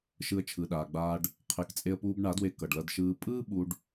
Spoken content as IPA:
ʃ ɯ˧ ə̯ t͡ʃʰ ɯ˨ ɗ aː˨ ɡ͡b aː˧ ɖ | qʰ e˨ k t͡sʼ e˧ ə̯ p uː˧ b ɳ a˨˦ d w e˧ k ʌ˨ ɖ l ʌ˧ d ʃ ɯː˧ pʼ ɯː˦ ɓ u˦ ɖ

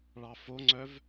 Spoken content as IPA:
ɭ ɑ f o ŋ͡ǀ œ v

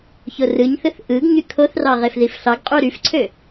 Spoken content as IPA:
ç o r ɯ ɲ θ ɯ θ ʔ ɯ ɡ ɲ y kʰ o θ r ɑ ʁ e f ð i f ɬ ɑ ɡ qʼ u ɾ y f ǀʰ ø

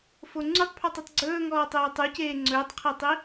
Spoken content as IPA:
f o ŋ͡ǀ u tˤ pʰ ɔ tˤ i tˤ ɡ͡ǀ ɵː ŋ ɔː tˤ eː tˤ u c eː ŋ͡ǀ ɵː tˤ qʰ e tˤ i

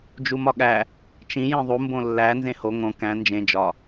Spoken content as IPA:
d͡ʒ u m ɒ ɠ æ | t͡ʃ ĩ j ĩ ðˤ u m b õ lː æ n z ẽ h o ŋ õ k æ̃ n d͡ʒ ẽ d͡ʒ ɒ

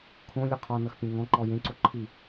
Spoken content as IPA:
kʰ õ lʲ ə qʰ ɔ n ʌ x pʲ ẽ ŋ ɔ̃ ǃ ɔ j ẽ ǀ o ǃʰ i

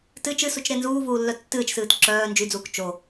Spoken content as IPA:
t ɨ t͡ʃ ɨ s u t͡ʃ ɾ e n z uː v uː lː œ tː ɨː t͡ʃ s ɨː t ǁ œː n d͡ʒ y d͡z uː k t͡ʃ o

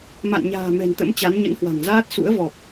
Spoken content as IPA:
m a̰˧˨ n ɲ a̤ː˨˩ m ɛ̤˨˩ n t̪ ə̰˧˥ m t͡ɕ a˨˦ n ɲ ə̰˧˥ n h w a̤˨˩ ŋ z aː˦˥ t̚ s ṵ˧˥ ə̯ v ɔ˨˩ p̚

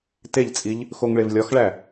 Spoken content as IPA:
t e ʎ t͡sʼ i ʎ | x o ŋ ɭ e v lʲ ɒ x ɭ æ

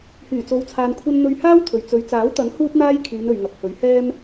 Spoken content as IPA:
h yː˨˩ t͡s o˨ w t͡sʰ aː˨ n kʷʰ ɐ˧ n n̪ ɵ˧ ɥ h aː˥ w t̪ʰ ɵ˨ ɥ t͡s ɵ˨˧ ɥ t͡s aː˨˥ w t̪ ɐ˨˥ ŋ h uː˥ p̚ n̪ aː˥ j kʰ yː˨˧ n ɵ˨ ɥ ŋ ɐ˨ k̚ h ɵ˨˥ ɥ h ɛː˥ m

